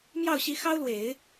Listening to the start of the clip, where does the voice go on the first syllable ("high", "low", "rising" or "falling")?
falling